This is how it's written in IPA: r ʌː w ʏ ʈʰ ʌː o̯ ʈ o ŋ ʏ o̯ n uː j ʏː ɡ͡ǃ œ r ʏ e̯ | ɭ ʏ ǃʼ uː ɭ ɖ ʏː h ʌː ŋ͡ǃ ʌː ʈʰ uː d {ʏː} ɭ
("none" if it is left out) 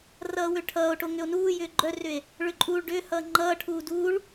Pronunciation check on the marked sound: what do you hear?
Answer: uː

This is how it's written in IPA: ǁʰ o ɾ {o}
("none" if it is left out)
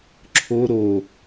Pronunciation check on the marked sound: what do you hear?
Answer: o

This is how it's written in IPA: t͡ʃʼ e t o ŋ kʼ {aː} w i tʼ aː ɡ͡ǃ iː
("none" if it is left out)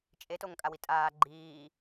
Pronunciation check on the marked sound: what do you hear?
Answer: a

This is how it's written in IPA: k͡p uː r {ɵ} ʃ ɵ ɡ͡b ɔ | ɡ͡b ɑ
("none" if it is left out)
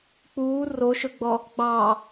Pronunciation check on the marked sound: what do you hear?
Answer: o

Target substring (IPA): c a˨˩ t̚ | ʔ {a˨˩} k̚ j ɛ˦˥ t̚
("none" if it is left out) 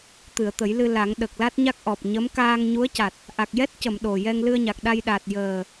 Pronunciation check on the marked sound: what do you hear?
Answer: a˨˩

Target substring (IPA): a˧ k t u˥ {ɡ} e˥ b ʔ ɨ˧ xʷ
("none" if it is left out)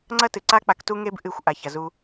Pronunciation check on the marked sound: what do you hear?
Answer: ŋ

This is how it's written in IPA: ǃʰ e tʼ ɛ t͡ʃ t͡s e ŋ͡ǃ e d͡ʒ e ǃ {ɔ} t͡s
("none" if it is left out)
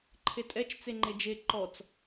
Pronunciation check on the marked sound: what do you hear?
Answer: ɔ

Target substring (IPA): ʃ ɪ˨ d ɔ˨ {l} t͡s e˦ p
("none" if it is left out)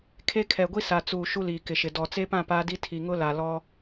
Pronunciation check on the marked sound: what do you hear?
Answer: none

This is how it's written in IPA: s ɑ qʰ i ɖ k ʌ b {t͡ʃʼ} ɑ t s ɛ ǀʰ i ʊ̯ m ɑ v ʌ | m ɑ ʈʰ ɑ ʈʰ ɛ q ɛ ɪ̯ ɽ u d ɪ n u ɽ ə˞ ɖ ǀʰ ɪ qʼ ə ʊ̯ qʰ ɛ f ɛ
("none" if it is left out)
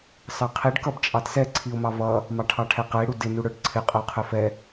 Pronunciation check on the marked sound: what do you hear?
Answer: t͡ʃʼ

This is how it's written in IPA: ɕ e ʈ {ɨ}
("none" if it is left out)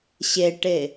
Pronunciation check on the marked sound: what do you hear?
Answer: e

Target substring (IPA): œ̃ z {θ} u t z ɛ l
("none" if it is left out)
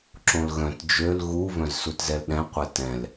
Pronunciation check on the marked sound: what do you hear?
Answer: s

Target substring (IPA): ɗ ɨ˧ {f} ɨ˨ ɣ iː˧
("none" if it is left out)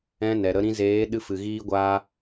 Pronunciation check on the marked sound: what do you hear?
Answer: f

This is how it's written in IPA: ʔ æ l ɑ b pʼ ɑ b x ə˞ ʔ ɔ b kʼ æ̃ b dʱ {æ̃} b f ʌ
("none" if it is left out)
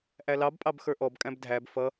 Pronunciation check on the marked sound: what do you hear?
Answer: æ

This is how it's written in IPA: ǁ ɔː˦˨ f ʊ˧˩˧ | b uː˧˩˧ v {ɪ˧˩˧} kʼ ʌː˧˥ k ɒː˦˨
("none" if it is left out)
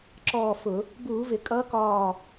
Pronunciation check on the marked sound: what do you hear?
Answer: ɪ˧˩˧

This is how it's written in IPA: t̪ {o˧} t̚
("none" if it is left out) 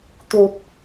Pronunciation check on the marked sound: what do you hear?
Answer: o˨˩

